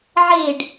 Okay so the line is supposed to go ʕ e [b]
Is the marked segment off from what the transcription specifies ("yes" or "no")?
yes